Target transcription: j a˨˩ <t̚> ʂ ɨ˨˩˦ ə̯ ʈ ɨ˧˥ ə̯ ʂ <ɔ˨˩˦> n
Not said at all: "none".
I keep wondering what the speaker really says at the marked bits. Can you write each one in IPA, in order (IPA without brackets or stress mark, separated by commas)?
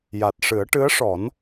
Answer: t̚, ɔ˨˩˦